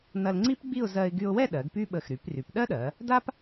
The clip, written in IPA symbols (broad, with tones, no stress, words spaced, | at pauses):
nɐ˧lŋ͡ǀi˥pɡ͡bi˥˧ʊ̯ zɜ˧ɪ̯ɡy˧ʊ̯wɛ˥˧ ɗɜ˩˧ɡpy˥ɓə˧˩x ɾy˩˧pry˩˧pɗɜ˥ɗɜ˩˧ | da˥p